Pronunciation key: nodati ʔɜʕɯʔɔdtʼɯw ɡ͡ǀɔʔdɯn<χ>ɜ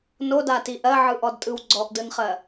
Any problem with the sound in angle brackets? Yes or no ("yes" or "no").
no